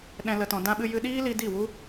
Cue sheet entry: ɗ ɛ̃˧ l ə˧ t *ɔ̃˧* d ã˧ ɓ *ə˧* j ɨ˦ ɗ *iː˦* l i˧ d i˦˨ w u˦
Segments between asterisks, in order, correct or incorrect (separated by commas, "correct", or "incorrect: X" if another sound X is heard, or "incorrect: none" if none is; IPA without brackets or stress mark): correct, incorrect: ɨ˧, correct